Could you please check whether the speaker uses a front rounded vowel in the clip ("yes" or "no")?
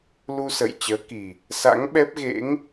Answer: no